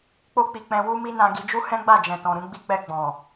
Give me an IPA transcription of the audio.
k͡p o˦ k͡p i˧ k͡p ɛ̃˧ w u˦ m i˦ n ã˧ ɡ i˧ d͡ʒ u˦ h ɛ̃˦ ɡ͡b a˦˨ d͡ʒ ɛ̃˨ t ɔ̃˨ ɾ ũ˧ ɡ͡b i˧ k͡p ɛ˧ ɡ͡b ɔ̃˨

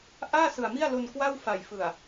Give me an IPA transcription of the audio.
ʔ aː˥˩ s ɯ˨˩ a̯ m i˥˩ a̯ l o˧ n k w a˥˩ w f a˨˩ j f ɯ˨˩ a̯

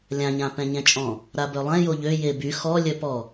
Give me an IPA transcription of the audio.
lʲ ã ɲ ã p ɛ̃ ɲ ɛ̃ t͡ʃʼ ɔ̃ | ɾ a b œ lˠ ɛ̃ j o ʎ ø j e b y x ɔ lʲ œ p ɔ

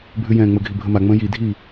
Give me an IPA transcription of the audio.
bʱ ʉ j ɛ̃ː ŋ͡m ə ɡʱ i bʱ ə m a ŋ͡m ə̃ː j i dʱ iː

